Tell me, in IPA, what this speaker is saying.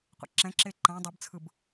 qʷ ɛ̰ ǁ ɛ̃ ǁ e ǃ ã dˤ ɯ b t͡sʰ ɯ b

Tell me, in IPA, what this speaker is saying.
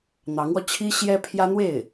n̪ ɑ˧˥ ŋ w ɔ˧ t͡ɕʰ i˥ ɕ j ɛ˥ pʰ j ä˥ n̪ w e˥˩ ɪ̯

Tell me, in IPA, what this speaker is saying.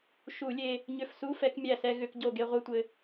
ʃ u˧˩˧ lʲ e˧ | ɲ ʏ˧˩ f s u˧˥˧ f ɛ˧ k mʲ æ˧˩ s ɛ˧ ɣ ʏ˧˩˧ k ɟ o˧˩ ɡ e˧ ʁʷ ɛ˧ tʷ ɘ˧

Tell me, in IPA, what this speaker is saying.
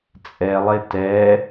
t͡sʼ ɛ lˠ e t ɛ

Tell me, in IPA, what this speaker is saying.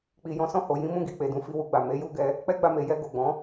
k͡p i˨ j ɔ̃˨˦ s ɔ̃˦˨ h o˨ j ĩ˨˦ m ũ˦˨ ɡ i˨ k͡p e˨ d ũ˨˦ f i˧ w u˧ ɡ͡b a˨ m e˨˦ j u˦ ɡ ɛ˧ | k͡p ɛ˦ ɡ͡b a˧ m e˨ j ɛ˧ ɡ o˨ ɡ͡b ɔ̃˨˦

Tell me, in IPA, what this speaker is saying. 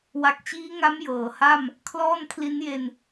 w a˨˩ k̚ t͡ɕ iː˦˥ ŋ a˦˥ m j ɤː˩˦ h a˥˩ m | kʰ l ɔː˥˩ n kʰ l i˦˥ n j e˧ n

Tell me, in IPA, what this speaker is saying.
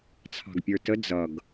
t͡sʰ ɑ̤ ɡ pʲ ə˞ t ə d͡z ʌ ɡ

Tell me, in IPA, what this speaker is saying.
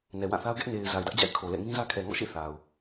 n ɛ˨ w ã˦˨ θ a˦ ʊ̯ ɡ ɛ˦ ʔ n e˨ ɪ̯ z a˨ ɪ̯ d ä˦ ʔ d͡ʑ a̰˦˨ ɪ̯ kʰ o˨ l ɛ̰˦˨ ŋ ĩ˦ z ä˦ kʰ ɛ˨ ŋ ɔ̰˦˨ ʃ ḛ˦˨ θ a˨ ʊ̯

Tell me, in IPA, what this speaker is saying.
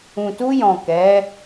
ũ˨ t u˧ j ɔ̃˨ k ɛ˨˦

